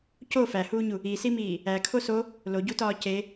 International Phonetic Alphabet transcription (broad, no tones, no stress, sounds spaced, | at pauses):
c o f æ h uː ɲ u | i s i m iː | æ kʰ o s o | l o ɟ u t ɒː c e